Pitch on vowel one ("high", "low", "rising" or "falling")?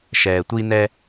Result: low